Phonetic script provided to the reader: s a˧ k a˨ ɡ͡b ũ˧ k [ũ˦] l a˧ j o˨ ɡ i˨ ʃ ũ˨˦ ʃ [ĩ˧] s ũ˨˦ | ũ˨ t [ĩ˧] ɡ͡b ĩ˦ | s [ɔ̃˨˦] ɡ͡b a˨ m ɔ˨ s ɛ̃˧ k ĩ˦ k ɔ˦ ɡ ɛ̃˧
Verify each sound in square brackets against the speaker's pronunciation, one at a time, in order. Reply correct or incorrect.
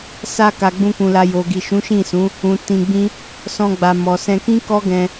incorrect, incorrect, correct, incorrect

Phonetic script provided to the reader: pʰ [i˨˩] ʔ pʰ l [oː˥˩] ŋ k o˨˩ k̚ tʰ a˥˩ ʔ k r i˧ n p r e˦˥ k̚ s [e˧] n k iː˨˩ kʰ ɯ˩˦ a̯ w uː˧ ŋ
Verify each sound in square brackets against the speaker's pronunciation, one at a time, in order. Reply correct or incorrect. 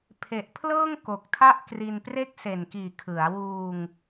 incorrect, incorrect, incorrect

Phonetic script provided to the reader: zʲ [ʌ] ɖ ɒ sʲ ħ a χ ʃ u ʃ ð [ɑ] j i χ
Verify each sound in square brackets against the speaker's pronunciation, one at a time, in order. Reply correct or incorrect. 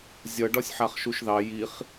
correct, correct

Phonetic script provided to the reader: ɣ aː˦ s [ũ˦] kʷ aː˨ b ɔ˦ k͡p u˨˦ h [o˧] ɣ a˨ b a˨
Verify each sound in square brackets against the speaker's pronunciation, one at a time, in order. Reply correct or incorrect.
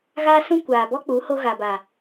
correct, correct

